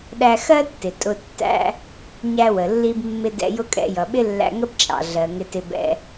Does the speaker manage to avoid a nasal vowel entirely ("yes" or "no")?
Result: yes